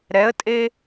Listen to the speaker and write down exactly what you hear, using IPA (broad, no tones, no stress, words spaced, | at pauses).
ɾɛə̯tʼe